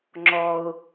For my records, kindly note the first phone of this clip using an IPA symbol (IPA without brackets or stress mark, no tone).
ŋ͡ǁ